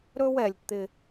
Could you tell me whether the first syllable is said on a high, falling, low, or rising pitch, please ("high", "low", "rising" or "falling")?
high